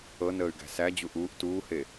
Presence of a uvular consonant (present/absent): absent